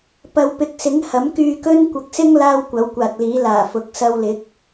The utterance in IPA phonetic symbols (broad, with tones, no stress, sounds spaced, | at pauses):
p ɐ˨ w p ɪ˨˥ k̚ s ɪ˨˥ ŋ h ɐ˨˥ m k yː˧ k ɵ˥ n kʷ ɐ˨ k̚ s ɪ˥ ŋ l aː˥ w kʷ ɐ˨˥ w kʷ aː˨ t̚ l iː˨˥ l aː˨˩ f ʊ˨˥ k̚ s ɐ˧ w l ɪ˨˥ k̚